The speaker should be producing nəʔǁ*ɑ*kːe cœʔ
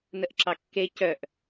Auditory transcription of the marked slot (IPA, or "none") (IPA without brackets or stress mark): ɑ